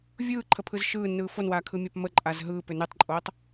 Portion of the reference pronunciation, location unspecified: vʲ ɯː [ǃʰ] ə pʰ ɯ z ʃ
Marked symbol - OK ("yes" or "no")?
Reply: yes